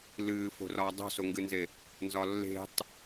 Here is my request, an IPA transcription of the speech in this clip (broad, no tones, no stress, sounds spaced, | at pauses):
l ɨː f o̤ r ɒː dˤ o̤ s o ŋ ɡ ɨ n z e | n z ɒ lː e̤ tˤ